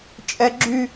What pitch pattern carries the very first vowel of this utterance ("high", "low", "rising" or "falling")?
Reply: high